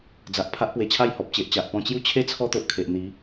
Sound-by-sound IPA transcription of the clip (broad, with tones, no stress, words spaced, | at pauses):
d͡za˨ʔ pʰa˦ʔpwe˧t͡ɕʰa˥˧j hɔ˨p̚t͡ɕe˨ʔt͡ɕa˨ʔ pɔ̃˧t͡ɕju˦t͡ɕʰe˦ t͡sʰɔ˦t̪o˨ʔ kʰe˨ʔn̪i˨˦